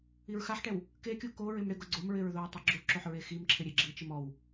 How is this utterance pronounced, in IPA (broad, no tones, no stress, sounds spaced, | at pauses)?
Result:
i ɹ x a ħ ʈ ɛ w | k e kʲ u k o ɹ ɪ m ɽ ɪ ɡ ʊ ɡ͡ǀ ʊ m ɹ ɪ ɹ ð o ɹ tˤ ɛ ɡ͡ǁ u ǁ o ħ ɹ e x i m ǁʰ ɪ ɾʲ e ɡ͡ǁ i t͡ʃ ɪ m ɔ w